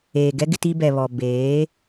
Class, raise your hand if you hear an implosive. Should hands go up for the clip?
no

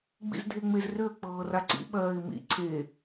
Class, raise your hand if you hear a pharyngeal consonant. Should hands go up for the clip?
no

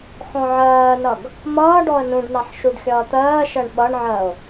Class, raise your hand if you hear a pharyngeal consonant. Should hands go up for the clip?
yes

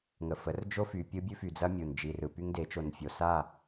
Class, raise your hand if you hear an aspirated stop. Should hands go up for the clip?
no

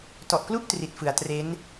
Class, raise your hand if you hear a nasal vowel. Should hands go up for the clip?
no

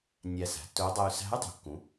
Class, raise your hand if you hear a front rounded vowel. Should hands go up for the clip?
yes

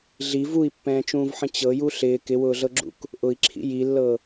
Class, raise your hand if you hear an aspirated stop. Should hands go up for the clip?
yes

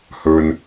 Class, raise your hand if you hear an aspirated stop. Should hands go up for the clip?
no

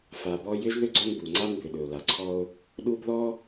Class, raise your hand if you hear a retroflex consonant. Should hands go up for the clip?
no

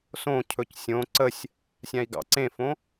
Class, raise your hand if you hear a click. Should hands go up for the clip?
yes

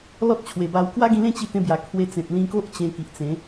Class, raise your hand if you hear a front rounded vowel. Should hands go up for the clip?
no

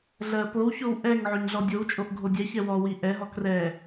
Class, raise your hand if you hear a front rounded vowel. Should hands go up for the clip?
no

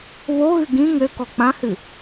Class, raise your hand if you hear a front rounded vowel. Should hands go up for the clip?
yes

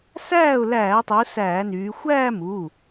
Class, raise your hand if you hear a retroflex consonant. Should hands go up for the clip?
no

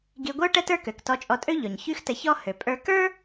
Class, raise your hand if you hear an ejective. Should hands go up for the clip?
yes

